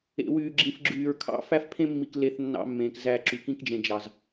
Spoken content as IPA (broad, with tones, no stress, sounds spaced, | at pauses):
ḛ˨ w yː˨ ɡ͡ǁ ĩ˨ f ɡ͡ǁ yː˨ ɹ kʰ ɑ̰˦ f æ˦ f pʰ ẽ˦ mː i˨ k l e˨ θ nː ɑ̰˦ mː ẽː˨ k z æ˦˨ ǁ y˨ k ĩ˦ k d͡ʒ ẽ˨ d͡ʒ ɑ˨ z